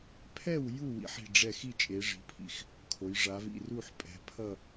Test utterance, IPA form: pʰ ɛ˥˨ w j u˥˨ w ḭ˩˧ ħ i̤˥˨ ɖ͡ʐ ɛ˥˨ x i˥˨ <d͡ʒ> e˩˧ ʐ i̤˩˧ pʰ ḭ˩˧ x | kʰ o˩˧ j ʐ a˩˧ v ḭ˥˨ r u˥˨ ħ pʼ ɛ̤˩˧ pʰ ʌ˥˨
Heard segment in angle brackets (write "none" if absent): t͡ʃʼ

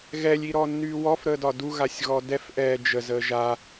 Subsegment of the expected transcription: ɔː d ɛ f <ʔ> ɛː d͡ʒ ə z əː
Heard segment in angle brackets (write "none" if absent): ʔ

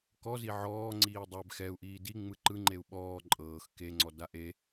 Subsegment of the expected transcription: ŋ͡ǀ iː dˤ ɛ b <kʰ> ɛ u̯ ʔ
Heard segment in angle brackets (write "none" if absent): x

